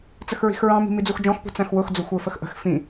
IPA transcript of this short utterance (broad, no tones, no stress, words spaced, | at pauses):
t͡səxɹi̤xɹɑ̃ mi̤mid͡zuxd͡ʒɔ̃x pṳt͡sæ̃xwʊx d͡zʊxʷə˞fəxʔə̤x fĩ